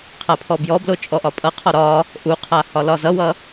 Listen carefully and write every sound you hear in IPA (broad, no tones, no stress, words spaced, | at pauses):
qʰapʰɔbjɔblo t͡ʃʼɔʔɒpʼʌqʰɒ ɾɒ | ʔuqʰa hɒlɒzʌwʌ